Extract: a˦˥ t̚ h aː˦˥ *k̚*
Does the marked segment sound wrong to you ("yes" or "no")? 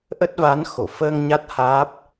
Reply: yes